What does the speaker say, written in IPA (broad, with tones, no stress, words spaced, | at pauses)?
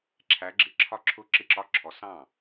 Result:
ǁʰæ˨˦ɡ͡ǁɪ˨ǁʰɒ˥˩ ǁʰʊː˥˧ǁɪ˦˥ǁɒ˧˥˧ǁʰɔ˨˦ sɑ̃˥˩